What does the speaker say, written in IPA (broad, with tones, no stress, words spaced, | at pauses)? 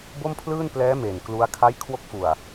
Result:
bo˥˩mpʰlɯː˥˩n plɛː˦˥ me˨˩nklu˦˥a̯ kʰa˦˥jkʰwo˦˥k̚fu˨˩a̯